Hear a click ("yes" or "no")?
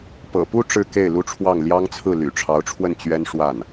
no